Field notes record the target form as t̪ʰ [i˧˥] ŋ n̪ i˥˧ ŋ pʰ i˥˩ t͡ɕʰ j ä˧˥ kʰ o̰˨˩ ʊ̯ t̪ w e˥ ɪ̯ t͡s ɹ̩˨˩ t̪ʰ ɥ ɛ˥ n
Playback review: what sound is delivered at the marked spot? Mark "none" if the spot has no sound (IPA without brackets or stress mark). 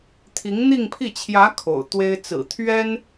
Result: i˧˥